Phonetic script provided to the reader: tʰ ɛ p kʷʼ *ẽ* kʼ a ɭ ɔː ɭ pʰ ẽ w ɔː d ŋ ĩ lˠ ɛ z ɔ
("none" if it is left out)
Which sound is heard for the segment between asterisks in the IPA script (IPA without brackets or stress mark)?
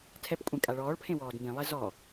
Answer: ẽ